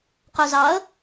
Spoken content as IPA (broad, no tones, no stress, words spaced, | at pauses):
qœzɑə̯